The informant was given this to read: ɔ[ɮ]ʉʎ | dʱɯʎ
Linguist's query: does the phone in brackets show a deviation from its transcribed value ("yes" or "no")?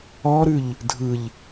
yes